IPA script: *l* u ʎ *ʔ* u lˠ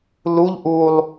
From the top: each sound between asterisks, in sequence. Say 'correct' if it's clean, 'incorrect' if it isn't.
correct, correct

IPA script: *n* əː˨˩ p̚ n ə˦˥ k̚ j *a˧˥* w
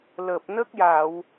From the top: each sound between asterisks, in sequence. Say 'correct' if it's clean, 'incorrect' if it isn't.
incorrect, incorrect

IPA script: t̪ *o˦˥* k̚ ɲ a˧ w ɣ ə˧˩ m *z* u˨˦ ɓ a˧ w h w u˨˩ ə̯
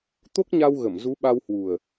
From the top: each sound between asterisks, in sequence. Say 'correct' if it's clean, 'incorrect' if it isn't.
correct, correct

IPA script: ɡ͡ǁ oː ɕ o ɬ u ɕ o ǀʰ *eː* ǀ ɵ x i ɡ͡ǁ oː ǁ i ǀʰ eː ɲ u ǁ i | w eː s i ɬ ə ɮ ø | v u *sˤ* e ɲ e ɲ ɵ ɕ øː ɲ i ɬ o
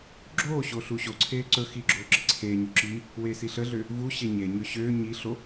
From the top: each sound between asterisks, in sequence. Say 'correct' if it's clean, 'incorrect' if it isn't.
correct, incorrect

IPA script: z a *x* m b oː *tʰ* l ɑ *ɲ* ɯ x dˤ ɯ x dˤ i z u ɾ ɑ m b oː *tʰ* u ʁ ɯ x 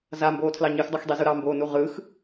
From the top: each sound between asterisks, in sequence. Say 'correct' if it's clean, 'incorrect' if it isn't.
incorrect, correct, correct, incorrect

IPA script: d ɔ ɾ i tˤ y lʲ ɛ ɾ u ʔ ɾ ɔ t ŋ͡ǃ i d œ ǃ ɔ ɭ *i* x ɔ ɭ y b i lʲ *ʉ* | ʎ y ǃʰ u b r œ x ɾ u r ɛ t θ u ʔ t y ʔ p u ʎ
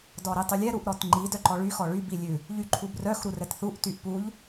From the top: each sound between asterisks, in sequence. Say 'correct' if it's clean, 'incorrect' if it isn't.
incorrect, correct

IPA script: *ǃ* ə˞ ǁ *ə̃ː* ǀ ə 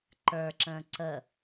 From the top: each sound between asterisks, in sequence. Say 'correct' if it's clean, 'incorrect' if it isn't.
correct, correct

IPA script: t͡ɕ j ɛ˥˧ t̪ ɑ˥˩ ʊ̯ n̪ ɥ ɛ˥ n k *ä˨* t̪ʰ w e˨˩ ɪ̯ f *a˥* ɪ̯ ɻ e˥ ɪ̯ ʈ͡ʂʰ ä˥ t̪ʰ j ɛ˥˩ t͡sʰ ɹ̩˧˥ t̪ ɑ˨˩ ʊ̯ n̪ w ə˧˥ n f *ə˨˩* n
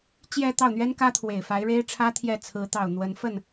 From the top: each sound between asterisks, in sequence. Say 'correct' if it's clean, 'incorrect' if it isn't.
incorrect, incorrect, incorrect

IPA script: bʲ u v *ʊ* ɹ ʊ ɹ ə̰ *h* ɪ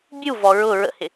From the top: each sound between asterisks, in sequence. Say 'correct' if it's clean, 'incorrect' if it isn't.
incorrect, correct

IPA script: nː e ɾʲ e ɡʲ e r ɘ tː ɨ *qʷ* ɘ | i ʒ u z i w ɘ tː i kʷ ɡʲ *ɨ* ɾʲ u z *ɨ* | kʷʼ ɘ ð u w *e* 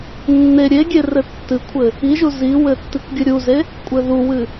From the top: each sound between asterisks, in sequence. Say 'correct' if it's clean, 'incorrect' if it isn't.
incorrect, correct, incorrect, incorrect

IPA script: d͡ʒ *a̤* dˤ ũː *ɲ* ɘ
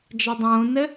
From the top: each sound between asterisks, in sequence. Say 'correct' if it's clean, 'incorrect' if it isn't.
incorrect, incorrect

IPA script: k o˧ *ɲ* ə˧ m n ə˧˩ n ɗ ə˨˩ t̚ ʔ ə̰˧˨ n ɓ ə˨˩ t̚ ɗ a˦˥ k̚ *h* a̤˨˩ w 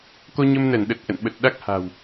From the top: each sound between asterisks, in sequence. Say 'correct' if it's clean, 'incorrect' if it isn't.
correct, correct

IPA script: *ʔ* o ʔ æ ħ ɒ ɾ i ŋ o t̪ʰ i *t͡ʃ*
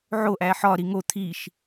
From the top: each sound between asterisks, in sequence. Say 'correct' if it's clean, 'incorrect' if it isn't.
incorrect, incorrect

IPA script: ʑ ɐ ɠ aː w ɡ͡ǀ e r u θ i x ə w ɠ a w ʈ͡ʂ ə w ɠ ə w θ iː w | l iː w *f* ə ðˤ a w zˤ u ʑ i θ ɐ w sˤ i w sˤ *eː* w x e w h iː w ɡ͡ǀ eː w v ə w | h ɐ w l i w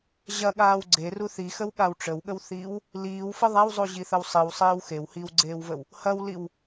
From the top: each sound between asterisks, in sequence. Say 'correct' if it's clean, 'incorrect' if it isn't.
correct, correct

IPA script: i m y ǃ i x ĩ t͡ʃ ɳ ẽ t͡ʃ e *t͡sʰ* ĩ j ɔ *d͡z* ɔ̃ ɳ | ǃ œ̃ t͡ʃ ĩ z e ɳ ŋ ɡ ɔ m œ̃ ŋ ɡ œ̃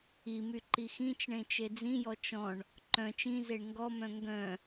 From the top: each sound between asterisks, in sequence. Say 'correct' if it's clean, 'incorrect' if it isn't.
incorrect, incorrect

